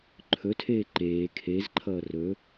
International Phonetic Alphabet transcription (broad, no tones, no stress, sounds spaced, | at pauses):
ǃʰ ɵ tʰ eː ǃ eː kʰ e z ǃʰ ʌː r ɵ